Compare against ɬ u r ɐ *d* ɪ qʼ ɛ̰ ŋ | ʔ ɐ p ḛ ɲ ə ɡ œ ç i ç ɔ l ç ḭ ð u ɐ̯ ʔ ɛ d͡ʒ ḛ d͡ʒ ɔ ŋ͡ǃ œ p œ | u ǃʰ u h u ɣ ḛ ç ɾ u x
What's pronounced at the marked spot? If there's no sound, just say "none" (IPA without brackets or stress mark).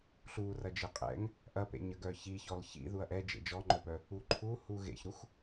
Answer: d͡ʒ